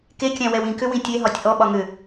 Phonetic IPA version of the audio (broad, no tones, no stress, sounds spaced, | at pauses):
k e kʲ æ̃ w ɛ w ĩ k ʏ w ĩ tʲ e ɦ ɒ tʲ ʔ ɔ ɓ ɒ ŋ ʏ